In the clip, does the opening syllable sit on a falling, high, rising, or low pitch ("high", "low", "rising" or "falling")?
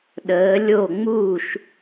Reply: rising